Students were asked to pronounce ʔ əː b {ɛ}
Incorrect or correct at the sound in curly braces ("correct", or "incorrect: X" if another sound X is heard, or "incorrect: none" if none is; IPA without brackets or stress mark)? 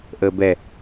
correct